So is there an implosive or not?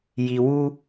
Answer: no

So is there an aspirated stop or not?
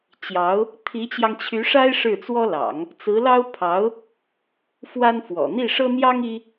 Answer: yes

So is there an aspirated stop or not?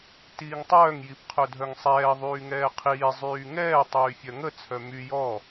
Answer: yes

